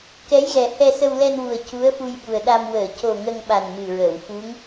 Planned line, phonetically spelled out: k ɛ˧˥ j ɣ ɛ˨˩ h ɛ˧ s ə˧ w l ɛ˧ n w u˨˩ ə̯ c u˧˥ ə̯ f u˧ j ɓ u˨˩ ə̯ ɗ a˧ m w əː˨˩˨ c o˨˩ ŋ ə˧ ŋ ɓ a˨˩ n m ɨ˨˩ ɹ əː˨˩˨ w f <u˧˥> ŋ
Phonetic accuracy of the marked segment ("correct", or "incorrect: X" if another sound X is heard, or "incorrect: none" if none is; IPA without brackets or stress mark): correct